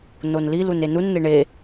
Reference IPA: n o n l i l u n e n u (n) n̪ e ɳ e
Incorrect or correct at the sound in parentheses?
correct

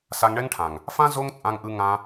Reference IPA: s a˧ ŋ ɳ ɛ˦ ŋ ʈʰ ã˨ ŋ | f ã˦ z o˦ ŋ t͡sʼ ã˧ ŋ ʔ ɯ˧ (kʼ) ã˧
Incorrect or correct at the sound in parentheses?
incorrect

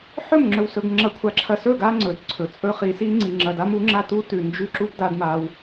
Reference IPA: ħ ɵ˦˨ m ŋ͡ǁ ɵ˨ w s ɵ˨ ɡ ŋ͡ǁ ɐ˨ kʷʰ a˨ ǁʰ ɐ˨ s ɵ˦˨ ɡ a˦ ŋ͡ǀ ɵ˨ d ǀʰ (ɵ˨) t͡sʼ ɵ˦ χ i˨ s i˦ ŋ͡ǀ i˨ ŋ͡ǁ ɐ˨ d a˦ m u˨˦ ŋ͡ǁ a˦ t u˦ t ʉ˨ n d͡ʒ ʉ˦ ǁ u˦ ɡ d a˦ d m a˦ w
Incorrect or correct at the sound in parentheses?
correct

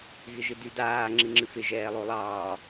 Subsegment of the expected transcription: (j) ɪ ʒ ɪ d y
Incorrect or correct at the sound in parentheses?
incorrect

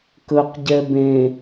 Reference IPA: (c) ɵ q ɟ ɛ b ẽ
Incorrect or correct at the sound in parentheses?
incorrect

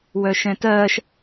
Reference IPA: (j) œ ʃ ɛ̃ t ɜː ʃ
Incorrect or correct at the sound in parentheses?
incorrect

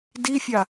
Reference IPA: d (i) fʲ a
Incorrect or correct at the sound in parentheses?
correct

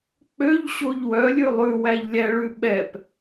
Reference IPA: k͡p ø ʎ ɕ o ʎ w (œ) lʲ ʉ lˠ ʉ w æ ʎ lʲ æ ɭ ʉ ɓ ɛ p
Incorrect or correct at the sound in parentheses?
correct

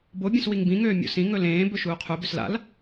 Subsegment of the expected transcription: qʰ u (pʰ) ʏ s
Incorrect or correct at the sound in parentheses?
incorrect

